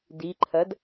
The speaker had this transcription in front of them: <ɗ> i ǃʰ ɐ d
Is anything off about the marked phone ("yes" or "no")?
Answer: yes